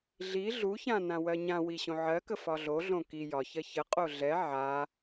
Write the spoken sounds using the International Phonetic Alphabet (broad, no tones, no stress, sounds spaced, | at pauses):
ɮ i ɮ u ç ã n ã w ɜ ɲ ã w i ɕ õ ʕ ɜ k ə f ɒ ɮ o ɮ õ k i j ɒ ç ɜ ç ə qʼ o ɮ ɛ ʕ a